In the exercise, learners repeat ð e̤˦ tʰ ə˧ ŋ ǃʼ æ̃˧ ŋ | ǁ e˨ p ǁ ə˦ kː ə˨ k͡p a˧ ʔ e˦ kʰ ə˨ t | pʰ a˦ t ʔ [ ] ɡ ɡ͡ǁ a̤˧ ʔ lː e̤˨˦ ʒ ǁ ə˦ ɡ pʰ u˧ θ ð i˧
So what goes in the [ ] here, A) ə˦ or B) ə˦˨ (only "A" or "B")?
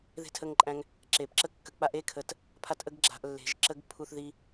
A